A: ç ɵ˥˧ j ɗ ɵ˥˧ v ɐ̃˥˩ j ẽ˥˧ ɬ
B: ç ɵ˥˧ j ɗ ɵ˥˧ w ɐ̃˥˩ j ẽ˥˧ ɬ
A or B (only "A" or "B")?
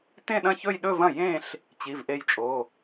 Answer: A